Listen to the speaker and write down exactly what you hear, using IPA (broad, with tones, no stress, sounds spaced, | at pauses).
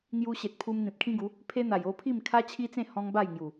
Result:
ŋ j u˧ ɕ e˨ t̚ pʰ u˧ m n̪ ĩ˨ p̚ kʰ ĩ˦ ɡ u˨˦ | pʰ e˦ n̪ a˨˩ j o˥˧ pʰ i˥˧ m kʰ a˦ t͡ɕʰ i˦ t͡s ẽ˥˧ h ɔ̃˦ ŋ b a˥˧ j ŋ j u˨˩